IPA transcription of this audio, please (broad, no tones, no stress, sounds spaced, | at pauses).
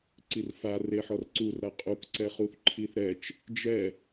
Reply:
ǀ i r f a r e ħ ɔ r ǀ u r ɾ a qʼ u k ǀ ɛ χ u θ ǃʰ i θ ɾ ɛ t͡ʃ | d͡ʒ ɛ